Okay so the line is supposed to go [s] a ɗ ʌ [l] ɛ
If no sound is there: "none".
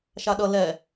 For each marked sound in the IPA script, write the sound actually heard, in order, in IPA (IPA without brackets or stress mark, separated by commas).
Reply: ʃ, l